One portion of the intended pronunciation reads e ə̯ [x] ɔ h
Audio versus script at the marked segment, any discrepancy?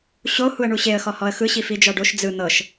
no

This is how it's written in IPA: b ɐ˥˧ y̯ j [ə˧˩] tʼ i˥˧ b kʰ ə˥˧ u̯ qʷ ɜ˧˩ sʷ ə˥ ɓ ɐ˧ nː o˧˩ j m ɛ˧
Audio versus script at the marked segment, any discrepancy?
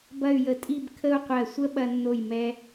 no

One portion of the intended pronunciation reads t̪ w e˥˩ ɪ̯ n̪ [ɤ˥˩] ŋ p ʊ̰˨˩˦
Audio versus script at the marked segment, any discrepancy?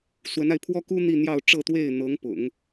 yes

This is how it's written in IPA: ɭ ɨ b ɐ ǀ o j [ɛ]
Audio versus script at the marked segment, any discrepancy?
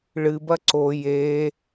yes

